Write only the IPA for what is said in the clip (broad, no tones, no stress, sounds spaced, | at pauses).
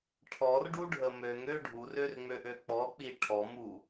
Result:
ʈʰ ɔ r ɖ u ɖʱ ə m ø ŋ ø ɖʱ u r ø r ŋ͡m ø ʔ ø k͡p ɔ k͡p i ʈʰ ɔ m u